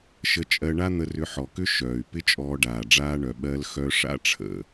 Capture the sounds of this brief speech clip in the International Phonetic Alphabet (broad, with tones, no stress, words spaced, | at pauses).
ʃə˧t͡ʃʼɜ˧ɳa˥ n̪ə˧rʏ˧ ħɔ˩kʏ˥ ʃœː˩y̯ pɪ˥t͡ʃʼɔː˧ɖaː˩ ɖ͡ʐaː˥ɳœ˩ ɓɜ˧lxœ˧ʂa̰˧ʈ͡ʂʰə̰˩